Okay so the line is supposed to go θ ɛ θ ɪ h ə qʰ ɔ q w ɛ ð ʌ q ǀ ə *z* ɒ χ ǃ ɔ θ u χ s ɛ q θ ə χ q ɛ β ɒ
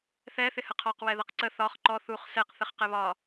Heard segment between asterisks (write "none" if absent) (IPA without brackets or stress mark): θ